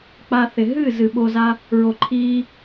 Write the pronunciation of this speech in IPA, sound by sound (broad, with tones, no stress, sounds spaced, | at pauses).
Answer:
k͡p a˧ θ ɪ˨ ɦ ɨ˦˨ z ɨ˨ ɓ o˧ z a˦ | ɹ o˨ ǃʰ iː˧